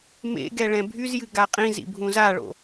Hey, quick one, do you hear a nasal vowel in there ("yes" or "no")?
yes